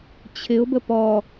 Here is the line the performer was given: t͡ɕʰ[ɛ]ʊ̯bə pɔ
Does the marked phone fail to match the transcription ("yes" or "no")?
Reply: yes